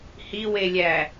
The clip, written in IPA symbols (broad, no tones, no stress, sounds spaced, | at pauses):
h i w e lʲ æ